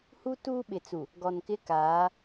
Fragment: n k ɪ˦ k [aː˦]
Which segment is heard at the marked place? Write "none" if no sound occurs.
aː˨˦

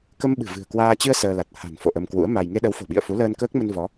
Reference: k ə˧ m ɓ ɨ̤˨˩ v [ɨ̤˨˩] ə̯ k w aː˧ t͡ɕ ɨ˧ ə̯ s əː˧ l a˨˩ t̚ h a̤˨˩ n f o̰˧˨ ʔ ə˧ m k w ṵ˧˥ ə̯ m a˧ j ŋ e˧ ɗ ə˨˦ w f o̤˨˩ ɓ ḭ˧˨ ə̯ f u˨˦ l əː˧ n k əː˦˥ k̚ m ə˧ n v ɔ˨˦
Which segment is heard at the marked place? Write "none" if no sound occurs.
ɨ̤˨˩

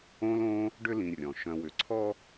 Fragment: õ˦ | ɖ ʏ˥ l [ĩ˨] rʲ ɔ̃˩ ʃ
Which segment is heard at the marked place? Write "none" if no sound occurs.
ĩ˨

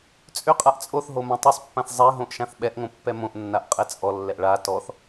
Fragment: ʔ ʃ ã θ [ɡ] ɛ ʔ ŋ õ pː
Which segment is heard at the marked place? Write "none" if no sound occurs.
ɓ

